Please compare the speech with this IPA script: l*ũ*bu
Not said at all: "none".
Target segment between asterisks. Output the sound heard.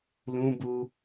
ũ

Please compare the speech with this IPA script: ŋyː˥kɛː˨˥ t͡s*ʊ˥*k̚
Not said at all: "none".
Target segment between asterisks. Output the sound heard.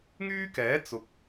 ʊ˨˥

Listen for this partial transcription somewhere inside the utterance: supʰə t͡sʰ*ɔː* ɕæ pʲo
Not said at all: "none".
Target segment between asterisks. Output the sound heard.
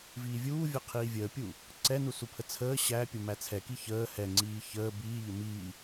əː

